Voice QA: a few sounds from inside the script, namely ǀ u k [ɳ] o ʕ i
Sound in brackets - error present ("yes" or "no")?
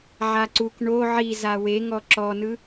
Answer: no